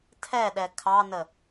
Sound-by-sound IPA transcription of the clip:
tʰ ɛ ɗ ɛ kʰ ɑ n ə

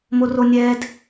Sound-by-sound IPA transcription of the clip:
m o r o nʲ ɛ d

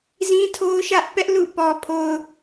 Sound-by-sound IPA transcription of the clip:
z ĩ˦ tʰ o˦ ʊ̯ ʃ ä˦ ʔ p ɛ˦ ʔ l ṵ˦˨ p ɔ˨ pʰ o˨ ʊ̯

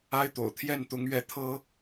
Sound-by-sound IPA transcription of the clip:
a˥ ɪ̯ t̪ o̰˨˩ ʊ̯ t̪ʰ j ɛ˥˩ n t̪ ʊ˧˥ ŋ ɥ ɛ˥˩ t̪ʰ ɤ˥

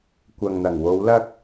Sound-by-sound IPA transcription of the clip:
kʷ ɐ˨ ŋ n̪ ɐ˨˩ ŋ w o˨˧ w l ɐ˥ k̚

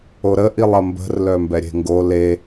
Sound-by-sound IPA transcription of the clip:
o ɾ ə ʔ i lˠ ɐ m b ə̤ r l œ m b ɛ ɾʲ e̤ ŋ ɡ o l e

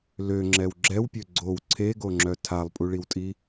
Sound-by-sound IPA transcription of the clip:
l ø ŋ͡ǁ ɛ w ɡ͡ǁ ɛ w pʲ ø ɡ͡ǀ o w ǀʰ e ɡ o ŋ͡ǁ œ tʰ a lˠ pʼ u ɭ i w tʼ i

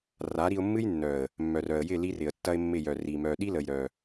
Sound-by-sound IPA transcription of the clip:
r a˨˦ ɾ i˧ ʊ̯ mː ɨ˦ j nː œ˨ ə̯ | mː œ˨ r œ˨ ə̯ j ɪ˦˨ l i˦ r ɪ˨ ə̯ tː ɐ˦ ɪ̯ mː ɪ˦˨ j œ˨ r i˨ m œ˨ ɗ i˦ l ə˨ j ɾ œ˨

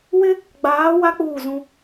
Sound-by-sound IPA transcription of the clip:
w ɪ˦ | ɡ͡b aː˨˦ w a˦ k͡p uː˦˨ z ũ˦

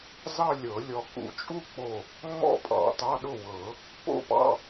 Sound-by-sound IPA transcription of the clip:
z ɑ˥˧ lʲ ɤ˨˩˦ lʲ ɔ˧˩ k ṵ˧˩ t͡ʃʼ u˥˧ k͡p o˧˩ | ŋ͡m ɔ̰˥˧ pʼ ɑ̰˨˩˦ t ɑ˧˥˧ ɗ ʊ˥˩ w ɤ˨˩˦ | p o̰˥˧ p ɑ̰˧˥˧

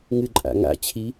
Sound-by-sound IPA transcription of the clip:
ŋ ɨ ǃʼ a̰ ŋ a̰ t͡ɕʰ i

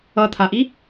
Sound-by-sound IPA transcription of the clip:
ʌ t̪ʰ a ʔ i

